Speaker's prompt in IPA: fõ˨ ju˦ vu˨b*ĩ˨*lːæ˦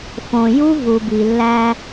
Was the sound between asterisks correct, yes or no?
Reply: no